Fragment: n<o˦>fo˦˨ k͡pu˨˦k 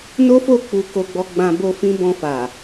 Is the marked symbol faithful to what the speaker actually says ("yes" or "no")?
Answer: yes